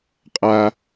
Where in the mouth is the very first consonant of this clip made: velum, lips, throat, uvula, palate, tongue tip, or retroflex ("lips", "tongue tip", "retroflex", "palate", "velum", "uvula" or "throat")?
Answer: uvula